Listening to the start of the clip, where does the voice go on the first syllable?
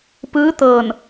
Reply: rising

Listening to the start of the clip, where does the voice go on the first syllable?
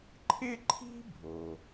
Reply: high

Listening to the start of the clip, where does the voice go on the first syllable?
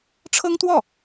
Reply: high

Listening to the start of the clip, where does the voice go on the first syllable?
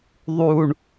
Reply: low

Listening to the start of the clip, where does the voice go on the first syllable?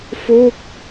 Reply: falling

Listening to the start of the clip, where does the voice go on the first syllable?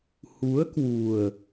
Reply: rising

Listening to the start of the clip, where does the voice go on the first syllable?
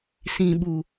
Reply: low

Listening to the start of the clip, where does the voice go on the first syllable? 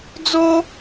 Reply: high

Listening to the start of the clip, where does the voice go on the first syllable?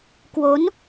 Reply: rising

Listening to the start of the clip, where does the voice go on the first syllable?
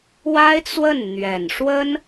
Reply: high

